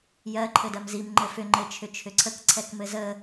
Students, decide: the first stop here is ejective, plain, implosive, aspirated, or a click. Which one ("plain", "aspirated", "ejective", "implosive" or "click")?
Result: click